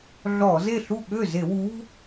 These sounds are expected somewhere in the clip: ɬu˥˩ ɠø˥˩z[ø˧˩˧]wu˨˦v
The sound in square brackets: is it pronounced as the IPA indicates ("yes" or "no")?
no